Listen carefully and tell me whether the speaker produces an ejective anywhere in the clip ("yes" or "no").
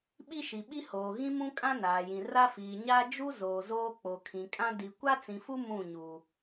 yes